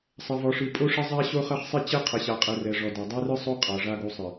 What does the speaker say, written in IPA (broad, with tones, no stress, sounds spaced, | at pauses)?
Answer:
sˤ ɐ˨ v ɔ˨ ʂ ɨ˨ pʼ o˦ ʂ ɐ˦ zˤ a˦ ɕ o˦ χ ɐ˦ χ sˤ e˦ t͡ɕ ɛ˦ qʰ ɐ˨ ɕ a˨ qʼ ɛ˨ r ɛ˨ ʐ ɔ˨ d a˨ dˤ ɛ˦ r ɨ˦ sˤ o˦ qʼ a˨ ʐ a˦ ɡ o˦ sˤ ɨ˨